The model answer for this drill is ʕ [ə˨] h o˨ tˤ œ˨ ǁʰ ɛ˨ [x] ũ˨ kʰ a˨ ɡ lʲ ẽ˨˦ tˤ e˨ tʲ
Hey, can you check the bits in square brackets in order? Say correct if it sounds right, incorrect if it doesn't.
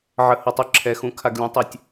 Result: correct, correct

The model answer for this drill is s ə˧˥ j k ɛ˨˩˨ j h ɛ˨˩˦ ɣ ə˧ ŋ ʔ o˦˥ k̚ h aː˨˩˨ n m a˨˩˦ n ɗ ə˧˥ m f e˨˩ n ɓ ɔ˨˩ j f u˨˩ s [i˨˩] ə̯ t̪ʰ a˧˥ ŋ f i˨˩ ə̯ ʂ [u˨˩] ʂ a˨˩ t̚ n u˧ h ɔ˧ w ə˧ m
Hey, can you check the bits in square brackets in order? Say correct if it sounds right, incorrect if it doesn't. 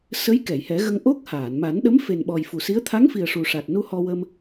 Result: incorrect: i˧˥, correct

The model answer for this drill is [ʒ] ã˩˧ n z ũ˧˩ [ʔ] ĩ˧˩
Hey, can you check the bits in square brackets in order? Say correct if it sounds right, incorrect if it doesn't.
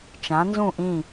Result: incorrect: t͡ʃ, correct

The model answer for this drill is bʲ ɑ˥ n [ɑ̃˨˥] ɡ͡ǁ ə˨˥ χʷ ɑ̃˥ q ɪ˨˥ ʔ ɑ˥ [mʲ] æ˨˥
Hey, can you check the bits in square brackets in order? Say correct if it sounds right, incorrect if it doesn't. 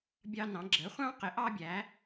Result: correct, incorrect: bʲ

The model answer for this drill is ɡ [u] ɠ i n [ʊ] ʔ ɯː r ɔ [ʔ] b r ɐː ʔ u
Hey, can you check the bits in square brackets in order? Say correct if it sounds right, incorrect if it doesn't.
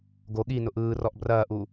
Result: incorrect: o, correct, correct

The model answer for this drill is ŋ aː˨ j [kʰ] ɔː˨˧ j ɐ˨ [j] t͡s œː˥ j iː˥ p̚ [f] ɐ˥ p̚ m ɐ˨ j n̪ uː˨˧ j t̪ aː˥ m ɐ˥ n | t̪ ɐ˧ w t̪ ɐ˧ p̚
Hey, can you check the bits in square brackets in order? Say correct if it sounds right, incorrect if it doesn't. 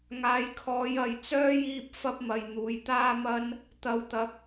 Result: correct, correct, correct

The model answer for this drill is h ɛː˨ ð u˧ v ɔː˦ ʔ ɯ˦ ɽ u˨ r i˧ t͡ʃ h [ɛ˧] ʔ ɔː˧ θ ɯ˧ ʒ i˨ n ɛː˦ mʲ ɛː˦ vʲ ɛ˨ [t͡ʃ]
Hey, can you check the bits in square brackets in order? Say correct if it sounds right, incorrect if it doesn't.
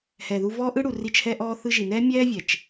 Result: correct, correct

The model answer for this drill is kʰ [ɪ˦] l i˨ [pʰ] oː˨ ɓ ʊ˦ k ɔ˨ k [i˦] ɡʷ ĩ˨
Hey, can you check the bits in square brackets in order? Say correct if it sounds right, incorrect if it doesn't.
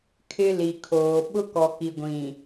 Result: correct, incorrect: kʰ, incorrect: i˨

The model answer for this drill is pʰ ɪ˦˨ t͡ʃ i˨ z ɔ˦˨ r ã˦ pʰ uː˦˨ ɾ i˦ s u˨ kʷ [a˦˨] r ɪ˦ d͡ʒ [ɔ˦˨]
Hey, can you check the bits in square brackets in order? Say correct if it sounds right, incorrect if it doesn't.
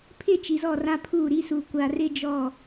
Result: incorrect: a˨, correct

